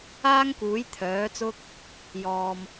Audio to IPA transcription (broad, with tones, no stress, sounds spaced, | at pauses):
aː˥ ŋ k uː˨˥ j t̪ʰ œː˨˥ t͡s ʊ˥ k̚ | j ɔː˧ m